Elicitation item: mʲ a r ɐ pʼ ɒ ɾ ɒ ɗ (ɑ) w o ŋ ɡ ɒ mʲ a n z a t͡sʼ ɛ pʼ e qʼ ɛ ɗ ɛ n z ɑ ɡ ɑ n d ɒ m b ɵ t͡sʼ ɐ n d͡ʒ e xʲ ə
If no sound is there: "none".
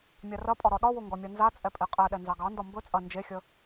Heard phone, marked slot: ɒ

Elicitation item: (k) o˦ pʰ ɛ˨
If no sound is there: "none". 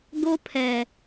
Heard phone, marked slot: ɡ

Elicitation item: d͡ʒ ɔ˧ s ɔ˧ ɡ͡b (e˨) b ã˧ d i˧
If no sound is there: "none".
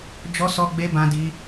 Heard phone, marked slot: e˧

